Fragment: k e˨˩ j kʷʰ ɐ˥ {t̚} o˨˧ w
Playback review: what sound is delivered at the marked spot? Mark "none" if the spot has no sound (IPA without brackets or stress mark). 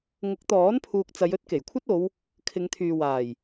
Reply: t̚